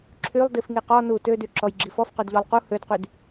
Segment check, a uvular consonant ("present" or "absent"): present